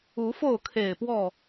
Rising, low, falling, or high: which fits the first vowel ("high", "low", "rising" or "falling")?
rising